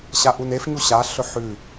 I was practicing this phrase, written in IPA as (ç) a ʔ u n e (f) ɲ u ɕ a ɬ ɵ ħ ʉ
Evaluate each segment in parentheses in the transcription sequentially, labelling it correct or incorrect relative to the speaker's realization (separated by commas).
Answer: incorrect, correct